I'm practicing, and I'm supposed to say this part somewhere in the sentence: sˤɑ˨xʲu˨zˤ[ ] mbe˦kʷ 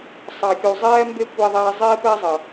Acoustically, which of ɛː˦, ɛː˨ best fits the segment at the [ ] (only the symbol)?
ɛː˦